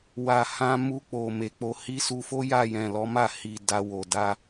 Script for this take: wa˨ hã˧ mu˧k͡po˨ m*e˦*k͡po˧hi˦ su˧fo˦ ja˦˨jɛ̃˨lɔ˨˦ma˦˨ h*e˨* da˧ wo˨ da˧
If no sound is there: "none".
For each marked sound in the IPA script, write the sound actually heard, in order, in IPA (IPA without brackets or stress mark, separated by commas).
e˨, i˨